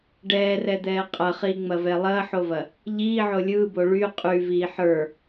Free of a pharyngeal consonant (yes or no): no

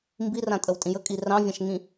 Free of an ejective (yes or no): no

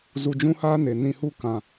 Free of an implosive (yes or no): yes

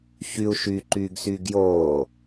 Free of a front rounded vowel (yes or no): no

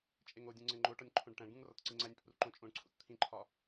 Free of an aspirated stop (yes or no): no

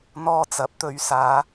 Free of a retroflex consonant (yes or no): yes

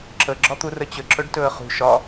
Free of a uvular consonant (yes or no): no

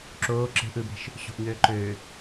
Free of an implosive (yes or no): yes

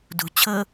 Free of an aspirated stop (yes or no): no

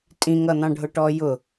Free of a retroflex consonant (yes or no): no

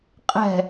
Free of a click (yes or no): yes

